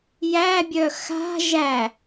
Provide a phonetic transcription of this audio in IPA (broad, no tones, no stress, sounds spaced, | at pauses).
j æ bʲ œ x a̤ ʒ æ